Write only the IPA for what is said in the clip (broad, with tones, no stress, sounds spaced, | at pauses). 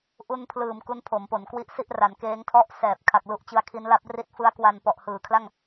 ʔ u˧ n pʰ l ɯː˨˩ m k u˦˥ n pʰ o˩˦ m p o˩˦ n k w i˦˥ ʔ s i˥˩ ʔ r a˩˦ n k eː˦˥ ŋ tʰ ɔ˥˩ ʔ s ɛː˨˩ p̚ kʰ a˨˩ k̚ l u˦˥ ʔ t͡ɕ ɯ˧ a̯ kʰ i˦˥ n l a˦˥ p̚ r i˥˩ t̚ f ɯ˦˥ a̯ k w a˧ n p ɔ˨˩ ʔ h ɯː˩˦ kʰ l a˥˩ ŋ